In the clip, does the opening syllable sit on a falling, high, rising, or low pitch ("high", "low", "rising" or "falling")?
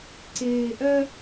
low